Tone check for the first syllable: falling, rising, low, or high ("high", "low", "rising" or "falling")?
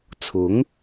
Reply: rising